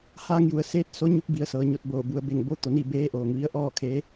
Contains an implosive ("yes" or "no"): no